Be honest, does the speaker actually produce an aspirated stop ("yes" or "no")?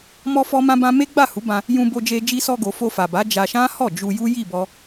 no